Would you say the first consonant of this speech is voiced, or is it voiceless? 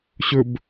voiceless